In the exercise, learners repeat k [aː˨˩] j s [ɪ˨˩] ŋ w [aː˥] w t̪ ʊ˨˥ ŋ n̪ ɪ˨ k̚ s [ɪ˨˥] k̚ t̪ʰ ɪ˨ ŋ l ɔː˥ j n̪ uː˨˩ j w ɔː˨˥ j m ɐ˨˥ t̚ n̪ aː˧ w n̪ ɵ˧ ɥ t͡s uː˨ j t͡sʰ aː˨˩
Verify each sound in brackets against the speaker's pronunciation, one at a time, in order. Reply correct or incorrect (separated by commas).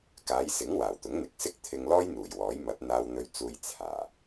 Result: incorrect, incorrect, incorrect, incorrect